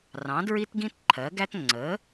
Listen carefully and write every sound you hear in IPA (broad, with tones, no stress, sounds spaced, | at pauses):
r ɑ̃˨˥ d ɹ i˥ t ɡ ĩ˥ t ǃʰ ɜ˨˥ ɡ æ˥ t ŋ͡ǀ ə˨˥